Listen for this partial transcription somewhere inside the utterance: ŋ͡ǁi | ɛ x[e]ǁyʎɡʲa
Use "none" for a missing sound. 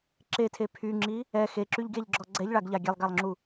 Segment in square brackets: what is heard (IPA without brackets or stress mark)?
e